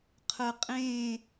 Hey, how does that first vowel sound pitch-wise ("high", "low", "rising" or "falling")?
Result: low